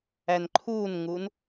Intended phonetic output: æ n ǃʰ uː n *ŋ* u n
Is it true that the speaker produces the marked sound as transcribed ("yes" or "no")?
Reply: yes